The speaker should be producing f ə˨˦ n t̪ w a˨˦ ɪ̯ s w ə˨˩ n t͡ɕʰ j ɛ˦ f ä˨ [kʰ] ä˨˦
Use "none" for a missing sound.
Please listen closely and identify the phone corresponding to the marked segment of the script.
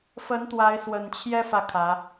kʰ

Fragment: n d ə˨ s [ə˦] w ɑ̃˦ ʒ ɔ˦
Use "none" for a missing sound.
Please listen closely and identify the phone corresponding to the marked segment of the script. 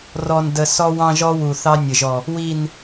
ɔ˦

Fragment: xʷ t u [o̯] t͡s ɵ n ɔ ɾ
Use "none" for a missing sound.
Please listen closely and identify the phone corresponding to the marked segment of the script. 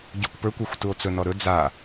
o̯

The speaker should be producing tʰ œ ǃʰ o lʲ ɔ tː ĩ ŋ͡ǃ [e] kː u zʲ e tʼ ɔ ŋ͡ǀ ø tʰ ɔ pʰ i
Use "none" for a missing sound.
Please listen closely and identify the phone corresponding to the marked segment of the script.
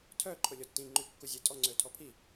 y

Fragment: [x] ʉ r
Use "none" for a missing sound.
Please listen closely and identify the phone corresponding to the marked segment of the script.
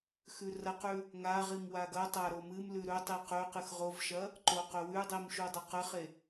x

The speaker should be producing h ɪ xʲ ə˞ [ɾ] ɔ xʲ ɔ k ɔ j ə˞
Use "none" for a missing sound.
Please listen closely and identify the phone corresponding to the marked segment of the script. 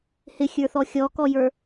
θ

